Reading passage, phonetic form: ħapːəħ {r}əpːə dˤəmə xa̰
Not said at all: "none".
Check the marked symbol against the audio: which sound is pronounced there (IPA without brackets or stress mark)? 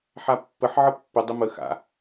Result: ʕ